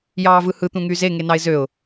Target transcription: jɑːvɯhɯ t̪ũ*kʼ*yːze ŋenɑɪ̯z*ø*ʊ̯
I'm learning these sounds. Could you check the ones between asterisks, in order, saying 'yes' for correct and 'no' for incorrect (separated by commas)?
no, yes